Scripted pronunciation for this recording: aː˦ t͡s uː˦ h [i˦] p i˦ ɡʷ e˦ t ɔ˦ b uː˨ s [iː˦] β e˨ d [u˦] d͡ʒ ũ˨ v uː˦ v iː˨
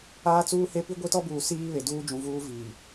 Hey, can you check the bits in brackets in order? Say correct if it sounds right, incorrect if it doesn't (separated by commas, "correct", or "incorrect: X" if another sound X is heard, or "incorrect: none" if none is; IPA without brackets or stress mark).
incorrect: e˦, correct, incorrect: uː˦